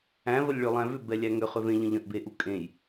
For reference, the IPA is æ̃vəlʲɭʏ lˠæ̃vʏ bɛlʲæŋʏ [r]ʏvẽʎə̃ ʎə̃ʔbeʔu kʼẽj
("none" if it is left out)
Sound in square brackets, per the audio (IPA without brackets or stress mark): χ